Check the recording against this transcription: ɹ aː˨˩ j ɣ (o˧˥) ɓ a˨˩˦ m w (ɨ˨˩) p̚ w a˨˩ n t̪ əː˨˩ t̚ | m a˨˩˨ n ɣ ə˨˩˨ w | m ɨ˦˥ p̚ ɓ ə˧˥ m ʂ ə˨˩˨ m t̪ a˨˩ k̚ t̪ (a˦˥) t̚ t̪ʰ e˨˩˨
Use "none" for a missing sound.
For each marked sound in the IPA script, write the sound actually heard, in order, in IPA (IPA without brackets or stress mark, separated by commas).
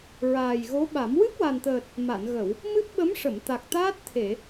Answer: o˧˥, ɨ˦˥, aː˦˥